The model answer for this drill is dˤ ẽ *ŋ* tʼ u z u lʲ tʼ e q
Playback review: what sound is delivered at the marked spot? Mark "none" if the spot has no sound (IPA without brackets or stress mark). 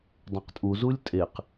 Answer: q